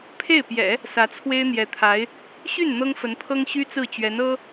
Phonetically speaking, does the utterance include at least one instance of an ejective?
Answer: no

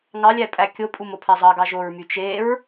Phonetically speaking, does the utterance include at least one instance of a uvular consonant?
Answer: no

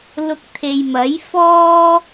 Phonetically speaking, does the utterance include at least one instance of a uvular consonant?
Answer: no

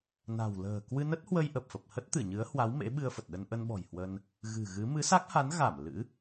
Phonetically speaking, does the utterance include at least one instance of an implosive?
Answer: yes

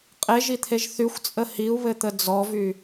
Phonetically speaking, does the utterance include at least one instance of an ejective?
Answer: yes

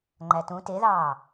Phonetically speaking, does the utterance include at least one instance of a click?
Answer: yes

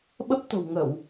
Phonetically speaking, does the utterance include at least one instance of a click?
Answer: no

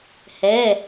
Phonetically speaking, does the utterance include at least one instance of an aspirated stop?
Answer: no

